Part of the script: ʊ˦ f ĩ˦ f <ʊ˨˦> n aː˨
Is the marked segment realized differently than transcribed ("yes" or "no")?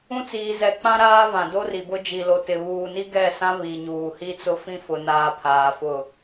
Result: yes